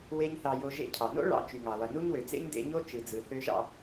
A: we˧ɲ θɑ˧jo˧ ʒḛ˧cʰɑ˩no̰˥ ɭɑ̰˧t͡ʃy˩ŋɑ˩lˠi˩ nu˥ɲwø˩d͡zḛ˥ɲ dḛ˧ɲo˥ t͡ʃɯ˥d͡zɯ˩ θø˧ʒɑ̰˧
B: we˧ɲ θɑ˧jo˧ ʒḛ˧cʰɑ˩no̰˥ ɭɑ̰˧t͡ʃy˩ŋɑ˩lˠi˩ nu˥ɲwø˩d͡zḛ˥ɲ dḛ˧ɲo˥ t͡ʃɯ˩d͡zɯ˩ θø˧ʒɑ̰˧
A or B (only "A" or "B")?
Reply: B